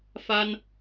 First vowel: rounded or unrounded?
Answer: unrounded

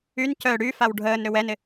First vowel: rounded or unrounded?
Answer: rounded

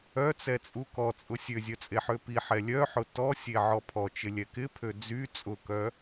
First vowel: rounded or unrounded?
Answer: rounded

